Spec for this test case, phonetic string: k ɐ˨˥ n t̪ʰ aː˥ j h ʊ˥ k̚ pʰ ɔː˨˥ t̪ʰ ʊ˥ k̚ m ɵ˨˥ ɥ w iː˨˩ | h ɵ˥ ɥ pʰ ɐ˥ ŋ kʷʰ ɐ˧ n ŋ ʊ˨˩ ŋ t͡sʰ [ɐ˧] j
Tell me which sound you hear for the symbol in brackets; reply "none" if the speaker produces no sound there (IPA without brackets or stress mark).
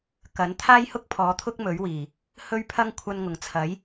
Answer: ɐ˨˥